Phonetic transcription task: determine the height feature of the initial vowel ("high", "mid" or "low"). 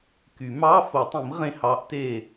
high